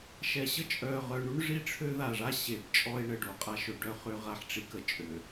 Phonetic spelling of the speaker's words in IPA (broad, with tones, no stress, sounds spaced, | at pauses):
ʃ ɛ˨ ɕ ə˦ t͡ʃʼ œ˨ ʁ œ˨ ɳ u˦ ɳ ʐ i˦˨ ʈ͡ʂʰ ø˦ ð a˨ ʐ a˦ ɕ e˨ b t͡ʃʼ ɔ˦ e̯ ɳ ə˨ ɖ o˨ qʼ a˦ ʃ ø˨ ɖ œ˦˨ χ ø˦ ʁ a˨ ħ ʈ͡ʂ i˦ k ə˨ t͡ʃʼ ø˨